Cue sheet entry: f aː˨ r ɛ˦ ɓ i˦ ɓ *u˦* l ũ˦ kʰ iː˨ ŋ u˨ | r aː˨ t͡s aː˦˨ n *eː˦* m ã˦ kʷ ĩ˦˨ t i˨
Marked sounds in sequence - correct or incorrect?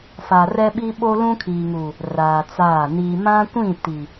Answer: incorrect, incorrect

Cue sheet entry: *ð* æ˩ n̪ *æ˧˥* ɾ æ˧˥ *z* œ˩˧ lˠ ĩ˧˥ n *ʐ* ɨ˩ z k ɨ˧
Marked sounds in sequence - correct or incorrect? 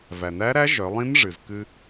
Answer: incorrect, correct, incorrect, correct

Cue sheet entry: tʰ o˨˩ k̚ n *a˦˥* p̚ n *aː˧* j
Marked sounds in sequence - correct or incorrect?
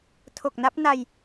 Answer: correct, incorrect

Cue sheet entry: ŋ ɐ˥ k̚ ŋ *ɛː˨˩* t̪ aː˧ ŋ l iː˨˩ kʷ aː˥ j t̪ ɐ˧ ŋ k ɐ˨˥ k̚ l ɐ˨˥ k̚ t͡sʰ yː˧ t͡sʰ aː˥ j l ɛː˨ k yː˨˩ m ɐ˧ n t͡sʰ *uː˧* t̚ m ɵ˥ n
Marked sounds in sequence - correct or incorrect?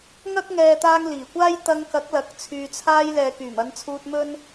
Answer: incorrect, correct

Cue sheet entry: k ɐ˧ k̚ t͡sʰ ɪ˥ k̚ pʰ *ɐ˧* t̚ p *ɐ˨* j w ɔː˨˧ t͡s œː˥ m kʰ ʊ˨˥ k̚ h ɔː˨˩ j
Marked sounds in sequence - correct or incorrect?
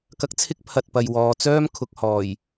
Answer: incorrect, correct

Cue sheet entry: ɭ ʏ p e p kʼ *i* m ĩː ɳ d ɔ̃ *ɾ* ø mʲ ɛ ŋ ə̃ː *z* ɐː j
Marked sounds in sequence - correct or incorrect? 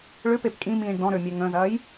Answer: incorrect, correct, correct

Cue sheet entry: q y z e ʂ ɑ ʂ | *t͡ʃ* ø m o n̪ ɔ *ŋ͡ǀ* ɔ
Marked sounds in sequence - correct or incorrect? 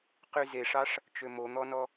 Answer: correct, incorrect

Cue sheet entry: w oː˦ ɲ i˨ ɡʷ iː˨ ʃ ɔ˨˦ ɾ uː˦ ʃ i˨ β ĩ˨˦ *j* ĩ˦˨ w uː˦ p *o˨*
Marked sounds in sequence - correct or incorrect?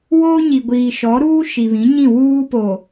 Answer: incorrect, correct

